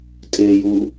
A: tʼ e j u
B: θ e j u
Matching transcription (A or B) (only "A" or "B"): A